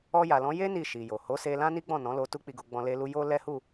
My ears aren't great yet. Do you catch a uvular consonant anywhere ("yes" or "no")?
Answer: no